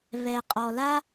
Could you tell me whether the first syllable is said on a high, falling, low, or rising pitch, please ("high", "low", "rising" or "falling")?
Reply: low